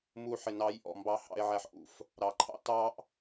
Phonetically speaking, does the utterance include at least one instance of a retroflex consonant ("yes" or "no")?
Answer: no